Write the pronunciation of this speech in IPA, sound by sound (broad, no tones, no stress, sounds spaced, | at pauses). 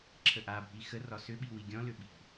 ǁʰ ə ʔ a bʱ i x ə r ɒ s ʏ ɓ i w i ɡʲ ɔ̃ l ʏ ɓ i̤